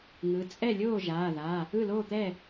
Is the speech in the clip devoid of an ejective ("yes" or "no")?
no